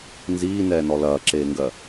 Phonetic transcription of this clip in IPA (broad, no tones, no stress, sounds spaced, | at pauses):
n z iː n ɛː n ɔ l ɐː ǁ eː ŋ ɡ ɜ